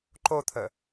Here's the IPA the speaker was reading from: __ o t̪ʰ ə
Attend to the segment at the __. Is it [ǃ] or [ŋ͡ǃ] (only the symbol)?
ǃ